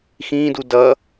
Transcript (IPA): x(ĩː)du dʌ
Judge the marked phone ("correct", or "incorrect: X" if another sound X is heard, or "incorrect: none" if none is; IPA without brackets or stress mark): correct